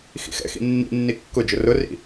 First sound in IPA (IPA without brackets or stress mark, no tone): x